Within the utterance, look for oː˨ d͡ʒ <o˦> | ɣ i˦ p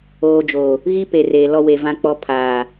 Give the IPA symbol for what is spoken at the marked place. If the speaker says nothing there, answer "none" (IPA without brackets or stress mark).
o˨